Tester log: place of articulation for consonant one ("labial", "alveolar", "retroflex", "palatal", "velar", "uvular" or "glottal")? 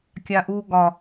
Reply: velar